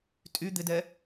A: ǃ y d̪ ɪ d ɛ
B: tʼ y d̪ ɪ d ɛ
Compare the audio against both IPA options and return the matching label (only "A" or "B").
B